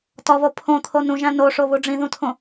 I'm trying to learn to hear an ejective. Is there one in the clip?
no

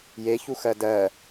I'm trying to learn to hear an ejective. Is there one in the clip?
no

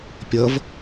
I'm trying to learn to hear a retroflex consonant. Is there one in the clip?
no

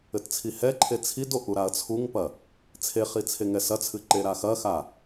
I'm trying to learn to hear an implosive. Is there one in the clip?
no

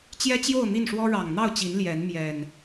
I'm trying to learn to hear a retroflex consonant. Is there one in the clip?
yes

